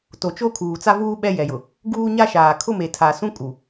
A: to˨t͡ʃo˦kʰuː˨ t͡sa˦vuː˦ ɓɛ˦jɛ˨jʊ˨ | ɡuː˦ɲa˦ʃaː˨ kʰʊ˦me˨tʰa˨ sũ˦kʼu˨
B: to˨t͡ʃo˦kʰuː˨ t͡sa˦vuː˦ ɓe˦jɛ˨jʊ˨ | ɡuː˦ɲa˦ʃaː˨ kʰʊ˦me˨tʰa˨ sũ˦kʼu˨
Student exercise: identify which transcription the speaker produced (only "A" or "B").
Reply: A